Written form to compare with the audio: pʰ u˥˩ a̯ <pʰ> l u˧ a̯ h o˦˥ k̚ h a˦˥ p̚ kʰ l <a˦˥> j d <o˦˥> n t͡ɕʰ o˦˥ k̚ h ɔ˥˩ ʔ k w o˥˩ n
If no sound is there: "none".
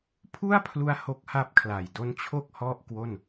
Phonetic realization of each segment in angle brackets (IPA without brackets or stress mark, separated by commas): pʰ, a˨˩, o˦˥